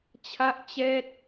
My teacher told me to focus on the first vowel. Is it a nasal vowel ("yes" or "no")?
no